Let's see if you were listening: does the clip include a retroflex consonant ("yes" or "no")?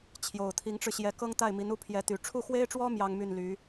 yes